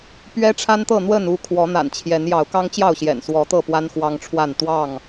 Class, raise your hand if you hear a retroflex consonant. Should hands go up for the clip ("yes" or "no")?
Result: yes